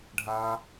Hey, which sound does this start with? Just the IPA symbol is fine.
ɖʱ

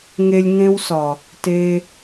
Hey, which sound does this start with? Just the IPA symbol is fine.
ŋ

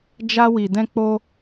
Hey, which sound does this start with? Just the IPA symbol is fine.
d͡ʒ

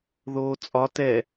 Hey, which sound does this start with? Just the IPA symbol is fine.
ð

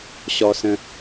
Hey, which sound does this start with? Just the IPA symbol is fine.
ɕ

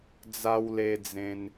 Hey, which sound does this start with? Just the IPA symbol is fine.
d͡z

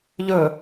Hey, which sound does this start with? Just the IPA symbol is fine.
ʎ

